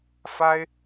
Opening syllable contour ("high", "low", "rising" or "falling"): high